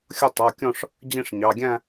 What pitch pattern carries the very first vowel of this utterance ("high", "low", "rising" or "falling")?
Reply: falling